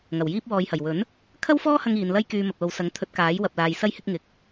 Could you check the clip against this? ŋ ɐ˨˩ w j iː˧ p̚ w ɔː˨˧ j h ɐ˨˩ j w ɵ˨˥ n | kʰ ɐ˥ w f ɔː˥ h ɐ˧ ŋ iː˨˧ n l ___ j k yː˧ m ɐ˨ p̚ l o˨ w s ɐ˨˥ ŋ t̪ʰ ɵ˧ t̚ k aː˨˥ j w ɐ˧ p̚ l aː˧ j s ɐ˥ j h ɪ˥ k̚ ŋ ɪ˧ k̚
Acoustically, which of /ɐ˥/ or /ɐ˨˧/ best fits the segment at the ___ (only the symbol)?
ɐ˥